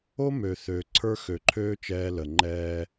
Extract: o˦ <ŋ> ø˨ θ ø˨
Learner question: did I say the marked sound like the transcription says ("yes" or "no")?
no